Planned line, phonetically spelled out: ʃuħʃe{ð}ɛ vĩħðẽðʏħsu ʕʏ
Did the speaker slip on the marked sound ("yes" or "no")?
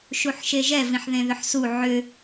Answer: yes